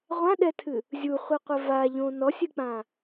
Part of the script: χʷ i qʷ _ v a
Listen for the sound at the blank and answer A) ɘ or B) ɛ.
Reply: A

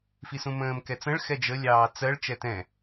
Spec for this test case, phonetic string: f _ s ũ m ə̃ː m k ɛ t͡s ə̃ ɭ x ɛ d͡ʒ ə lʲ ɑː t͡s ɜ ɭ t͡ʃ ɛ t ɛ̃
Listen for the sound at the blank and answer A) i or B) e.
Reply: A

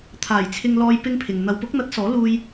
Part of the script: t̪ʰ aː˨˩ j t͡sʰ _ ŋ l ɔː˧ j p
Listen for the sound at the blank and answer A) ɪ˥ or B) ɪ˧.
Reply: B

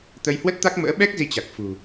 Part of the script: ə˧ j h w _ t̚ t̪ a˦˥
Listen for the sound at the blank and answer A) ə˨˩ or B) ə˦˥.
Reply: B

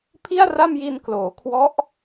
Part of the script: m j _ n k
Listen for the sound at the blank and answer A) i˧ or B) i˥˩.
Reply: A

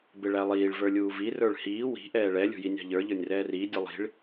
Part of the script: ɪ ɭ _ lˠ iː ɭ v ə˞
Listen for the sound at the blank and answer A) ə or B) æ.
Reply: B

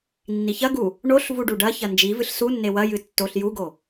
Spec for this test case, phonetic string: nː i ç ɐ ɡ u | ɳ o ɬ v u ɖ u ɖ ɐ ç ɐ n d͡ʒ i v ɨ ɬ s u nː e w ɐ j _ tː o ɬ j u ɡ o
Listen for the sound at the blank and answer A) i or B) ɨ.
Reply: B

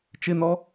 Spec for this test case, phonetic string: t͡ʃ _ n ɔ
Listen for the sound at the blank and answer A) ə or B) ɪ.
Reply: B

